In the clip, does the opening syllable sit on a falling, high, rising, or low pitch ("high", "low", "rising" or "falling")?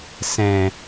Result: low